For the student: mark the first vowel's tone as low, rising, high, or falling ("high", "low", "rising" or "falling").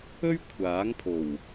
high